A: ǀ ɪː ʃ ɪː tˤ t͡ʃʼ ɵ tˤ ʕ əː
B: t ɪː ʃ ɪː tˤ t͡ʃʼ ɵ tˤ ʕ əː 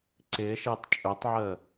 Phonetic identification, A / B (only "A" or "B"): A